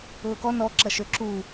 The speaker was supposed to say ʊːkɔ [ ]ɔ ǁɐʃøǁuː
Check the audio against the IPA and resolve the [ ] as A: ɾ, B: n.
B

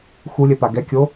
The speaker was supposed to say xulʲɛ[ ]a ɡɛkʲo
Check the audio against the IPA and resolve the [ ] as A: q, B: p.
B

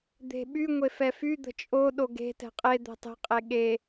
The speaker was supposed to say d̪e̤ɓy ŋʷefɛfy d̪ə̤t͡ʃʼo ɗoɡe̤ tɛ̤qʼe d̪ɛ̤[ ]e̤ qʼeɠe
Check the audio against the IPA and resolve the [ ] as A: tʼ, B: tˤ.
B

